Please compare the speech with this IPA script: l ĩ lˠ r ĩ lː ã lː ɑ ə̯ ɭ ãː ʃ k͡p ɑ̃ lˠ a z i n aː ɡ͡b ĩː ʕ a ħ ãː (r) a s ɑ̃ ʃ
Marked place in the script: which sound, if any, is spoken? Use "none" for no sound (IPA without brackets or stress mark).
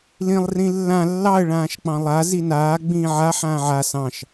ʕ